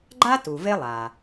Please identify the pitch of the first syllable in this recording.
high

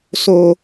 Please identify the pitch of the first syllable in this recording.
high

